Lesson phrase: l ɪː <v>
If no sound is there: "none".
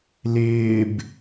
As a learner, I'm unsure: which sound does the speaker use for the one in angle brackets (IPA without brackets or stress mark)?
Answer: b